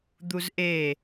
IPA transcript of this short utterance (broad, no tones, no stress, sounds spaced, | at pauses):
d̪ u z ʔ e